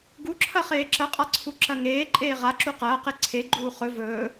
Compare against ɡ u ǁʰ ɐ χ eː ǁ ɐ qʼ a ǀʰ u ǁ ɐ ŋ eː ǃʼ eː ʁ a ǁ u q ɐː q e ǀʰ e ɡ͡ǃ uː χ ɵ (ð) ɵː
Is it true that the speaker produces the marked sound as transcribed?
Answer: no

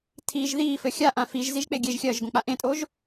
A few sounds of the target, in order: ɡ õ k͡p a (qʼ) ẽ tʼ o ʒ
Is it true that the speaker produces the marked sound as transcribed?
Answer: no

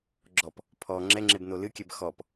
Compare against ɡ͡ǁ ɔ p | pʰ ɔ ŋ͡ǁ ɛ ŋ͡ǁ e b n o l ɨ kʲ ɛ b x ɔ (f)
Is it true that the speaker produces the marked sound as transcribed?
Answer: no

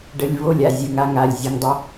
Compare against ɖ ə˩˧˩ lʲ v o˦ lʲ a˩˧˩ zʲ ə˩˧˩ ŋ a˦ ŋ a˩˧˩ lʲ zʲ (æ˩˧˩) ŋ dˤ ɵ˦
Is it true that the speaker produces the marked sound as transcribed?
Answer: no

